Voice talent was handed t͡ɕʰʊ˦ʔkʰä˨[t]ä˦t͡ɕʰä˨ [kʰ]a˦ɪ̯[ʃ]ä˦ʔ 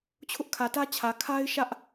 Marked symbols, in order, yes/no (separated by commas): yes, yes, yes